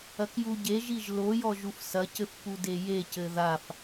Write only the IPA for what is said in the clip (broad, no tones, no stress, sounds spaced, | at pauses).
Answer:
ɐ k j u ɟ e ʒ i ʒ l o j ɔ ʒ u f s ɐ c ɘ f p u d e j e c ɘ ð a f